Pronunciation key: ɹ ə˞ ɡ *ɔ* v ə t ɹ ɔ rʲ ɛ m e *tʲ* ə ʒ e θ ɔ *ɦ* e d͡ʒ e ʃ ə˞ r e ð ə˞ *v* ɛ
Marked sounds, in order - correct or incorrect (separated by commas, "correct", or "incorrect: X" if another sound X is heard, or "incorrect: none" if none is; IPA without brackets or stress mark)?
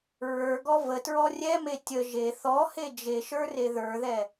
correct, correct, incorrect: h, incorrect: ð